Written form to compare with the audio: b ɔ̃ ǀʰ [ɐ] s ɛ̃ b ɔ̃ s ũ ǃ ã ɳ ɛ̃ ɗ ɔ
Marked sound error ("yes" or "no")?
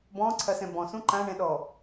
no